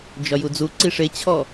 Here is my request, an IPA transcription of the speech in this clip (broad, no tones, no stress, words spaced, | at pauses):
d͡ʒɒjud͡zuǀi ʂet͡ɕʰɔ